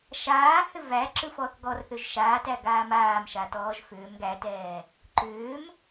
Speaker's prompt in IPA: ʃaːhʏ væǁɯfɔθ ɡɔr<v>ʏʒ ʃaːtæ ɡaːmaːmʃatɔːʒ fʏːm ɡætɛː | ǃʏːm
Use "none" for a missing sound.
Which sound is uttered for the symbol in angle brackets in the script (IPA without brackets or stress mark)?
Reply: θ